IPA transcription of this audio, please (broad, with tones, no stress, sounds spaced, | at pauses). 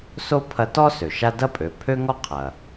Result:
s o˥ pʰ ɐ˧˥ t ɔ˥ s ø˩ ʃ a˥ d ɐ˥ pʼ ø˩˧ pʰ ø˥ ŋ ɔ˥ qʰ ɐ˩